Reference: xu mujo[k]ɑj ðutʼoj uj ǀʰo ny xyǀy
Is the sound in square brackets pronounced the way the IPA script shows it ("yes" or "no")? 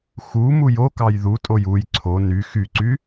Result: yes